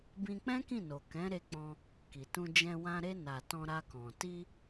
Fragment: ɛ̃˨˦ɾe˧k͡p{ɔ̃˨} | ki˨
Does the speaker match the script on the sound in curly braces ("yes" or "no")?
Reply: no